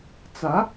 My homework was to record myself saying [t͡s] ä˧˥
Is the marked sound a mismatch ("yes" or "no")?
no